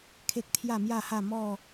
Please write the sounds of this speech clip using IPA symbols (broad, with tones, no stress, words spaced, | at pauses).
kʰe˦k̚t̪ʰja˥˧mja˥˧ha˥˧ mɔ˥˧